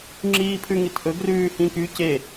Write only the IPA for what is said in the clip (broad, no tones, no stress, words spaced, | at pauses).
ŋ͡ǁiːpʰʉŋitʔɵ ɡrʉːhĩky ce